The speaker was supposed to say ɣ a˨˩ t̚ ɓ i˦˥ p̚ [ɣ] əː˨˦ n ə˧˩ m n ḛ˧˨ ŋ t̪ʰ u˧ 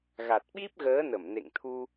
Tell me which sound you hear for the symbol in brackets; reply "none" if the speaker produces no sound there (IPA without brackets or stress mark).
ɣ